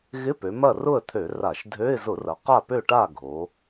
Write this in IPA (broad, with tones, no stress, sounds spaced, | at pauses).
ɣ ɪ˧˥˧ p ø˩˧ m ɐ˥˨ r ʊ˥˨ ə̯ t̪ʰ ø˧˩˧ r a˧˩˧ ʃ dʱ ø˧˥˧ ɪ̯ z ʊ˧˩˧ r ɐ˩˧ q a˥˨ p ø˥˨ ʈ a˥˨ ɡʱ o˩˧